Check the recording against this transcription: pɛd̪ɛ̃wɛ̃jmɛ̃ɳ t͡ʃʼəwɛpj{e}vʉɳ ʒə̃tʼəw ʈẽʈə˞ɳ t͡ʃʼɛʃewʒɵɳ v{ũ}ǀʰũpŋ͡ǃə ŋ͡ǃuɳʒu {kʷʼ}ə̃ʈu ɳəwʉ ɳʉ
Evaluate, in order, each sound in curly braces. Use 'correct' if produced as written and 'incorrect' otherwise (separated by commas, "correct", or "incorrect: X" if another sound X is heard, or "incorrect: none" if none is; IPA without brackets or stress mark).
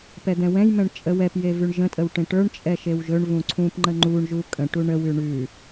correct, correct, incorrect: kʼ